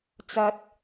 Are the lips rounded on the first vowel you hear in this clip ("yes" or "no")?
no